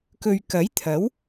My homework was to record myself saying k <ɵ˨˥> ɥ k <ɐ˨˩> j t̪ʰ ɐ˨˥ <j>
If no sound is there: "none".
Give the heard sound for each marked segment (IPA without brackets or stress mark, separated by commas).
ɵ˨, ɐ˨˥, w